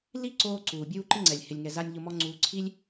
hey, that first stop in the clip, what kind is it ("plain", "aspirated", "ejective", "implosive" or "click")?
click